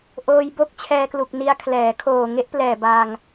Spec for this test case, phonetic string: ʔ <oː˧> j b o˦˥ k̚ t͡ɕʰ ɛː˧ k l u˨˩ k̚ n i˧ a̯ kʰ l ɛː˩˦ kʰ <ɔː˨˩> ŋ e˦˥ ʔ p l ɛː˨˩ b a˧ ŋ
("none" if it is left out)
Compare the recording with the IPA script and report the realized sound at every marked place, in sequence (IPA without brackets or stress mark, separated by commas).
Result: oː˧, oː˨˩